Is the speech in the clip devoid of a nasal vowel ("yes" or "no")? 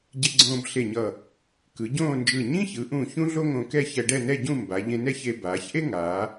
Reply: no